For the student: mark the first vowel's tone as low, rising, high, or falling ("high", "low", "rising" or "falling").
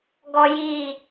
low